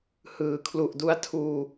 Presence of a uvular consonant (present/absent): absent